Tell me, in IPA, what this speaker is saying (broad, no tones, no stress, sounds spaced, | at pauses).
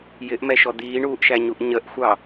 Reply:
j ɪ ʔ m ɛ ʃ ɔ d̪ iː ɳ uː ʔ ʃ æ ɲ u ʔ ɲ ə ʔ xʷ ɑ